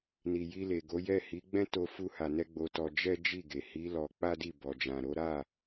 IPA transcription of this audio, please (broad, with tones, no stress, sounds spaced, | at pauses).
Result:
n i˨ j i˧ l e˨ ɡ o˨˦ j ɛ˦˨ h i˨˦ ɡ͡b ɛ̃˦ t o˧ f u˧ h a˨ n ɛ˧ ɡ͡b o˧ t ɔ˧ d͡ʒ ɛ˦ d͡ʒ i˦˨ ɡ e˨ h i˨˦ l ɔ˧ k͡p a˦ d i˦˨ b ɔ˨ d͡ʒ ã˨ ɾ o˨˦ ɾ a˦˨